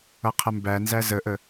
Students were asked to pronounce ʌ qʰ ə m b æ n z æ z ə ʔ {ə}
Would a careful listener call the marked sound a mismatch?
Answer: no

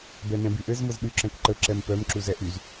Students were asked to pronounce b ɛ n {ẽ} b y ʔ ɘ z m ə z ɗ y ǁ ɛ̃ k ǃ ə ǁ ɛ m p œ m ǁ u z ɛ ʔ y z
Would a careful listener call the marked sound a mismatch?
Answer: yes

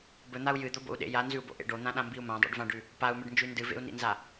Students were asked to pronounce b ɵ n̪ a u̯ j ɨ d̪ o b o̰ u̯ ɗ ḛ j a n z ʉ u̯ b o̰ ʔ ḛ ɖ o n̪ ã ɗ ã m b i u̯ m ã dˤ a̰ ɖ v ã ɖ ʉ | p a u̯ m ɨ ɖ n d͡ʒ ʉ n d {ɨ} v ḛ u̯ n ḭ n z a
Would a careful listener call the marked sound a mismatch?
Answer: no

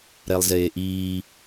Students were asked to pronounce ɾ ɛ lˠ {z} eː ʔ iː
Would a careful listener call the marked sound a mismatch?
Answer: no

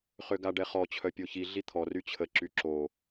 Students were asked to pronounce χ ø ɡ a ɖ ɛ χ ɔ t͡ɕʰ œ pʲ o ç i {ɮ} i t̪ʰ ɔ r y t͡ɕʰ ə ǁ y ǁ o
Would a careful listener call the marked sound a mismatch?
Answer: no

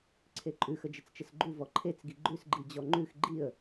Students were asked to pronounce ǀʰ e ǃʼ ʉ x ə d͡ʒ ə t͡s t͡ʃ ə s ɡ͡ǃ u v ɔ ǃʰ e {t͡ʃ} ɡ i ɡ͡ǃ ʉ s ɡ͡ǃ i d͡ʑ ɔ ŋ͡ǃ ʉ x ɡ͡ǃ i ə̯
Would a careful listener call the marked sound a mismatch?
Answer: yes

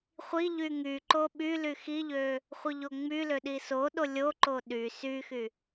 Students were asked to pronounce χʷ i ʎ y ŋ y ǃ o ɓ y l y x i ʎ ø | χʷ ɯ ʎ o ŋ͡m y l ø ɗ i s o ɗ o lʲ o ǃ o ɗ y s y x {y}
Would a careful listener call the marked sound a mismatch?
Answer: no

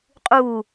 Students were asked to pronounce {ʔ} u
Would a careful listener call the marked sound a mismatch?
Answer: yes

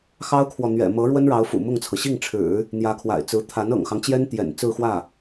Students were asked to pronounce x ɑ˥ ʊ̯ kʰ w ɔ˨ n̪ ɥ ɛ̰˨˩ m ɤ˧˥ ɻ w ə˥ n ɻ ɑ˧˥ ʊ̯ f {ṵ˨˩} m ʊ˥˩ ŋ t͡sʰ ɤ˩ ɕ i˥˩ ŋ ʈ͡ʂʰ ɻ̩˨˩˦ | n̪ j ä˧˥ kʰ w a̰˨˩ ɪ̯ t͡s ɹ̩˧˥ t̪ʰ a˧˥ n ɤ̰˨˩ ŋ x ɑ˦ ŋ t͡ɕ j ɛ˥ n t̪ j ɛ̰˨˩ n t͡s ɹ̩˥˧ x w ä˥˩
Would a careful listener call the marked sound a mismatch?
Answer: no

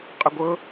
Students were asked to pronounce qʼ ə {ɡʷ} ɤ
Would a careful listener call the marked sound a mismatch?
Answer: no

